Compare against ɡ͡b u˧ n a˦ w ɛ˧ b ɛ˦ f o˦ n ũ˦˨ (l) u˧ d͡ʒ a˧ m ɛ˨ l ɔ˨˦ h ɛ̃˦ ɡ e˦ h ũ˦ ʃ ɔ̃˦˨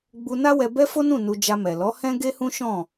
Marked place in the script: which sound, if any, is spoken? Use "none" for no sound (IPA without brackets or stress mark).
n